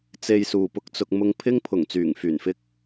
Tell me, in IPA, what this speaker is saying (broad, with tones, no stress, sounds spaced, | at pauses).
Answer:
t͡s e˧ j s uː˨ p ʊ˧ k̚ t͡s ʊ˧ k̚ m ʊ˧ ŋ pʰ ɪ˥ ŋ pʰ ʊ˨˩ ŋ t͡s yː˨˩ ŋ f yː˨˩ n f ɪ˥ k̚